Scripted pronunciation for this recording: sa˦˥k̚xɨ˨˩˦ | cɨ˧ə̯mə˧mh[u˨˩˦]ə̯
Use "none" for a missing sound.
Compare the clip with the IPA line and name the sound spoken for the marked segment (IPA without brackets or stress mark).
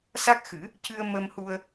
u˧